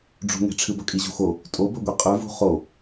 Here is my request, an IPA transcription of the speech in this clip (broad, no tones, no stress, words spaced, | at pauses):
ɖ͡ʐṳŋe̤ʈ͡ʂʰɨ bɐkʼiʑṳxo | tʼobɵɡʷi qʼʉvṳ χo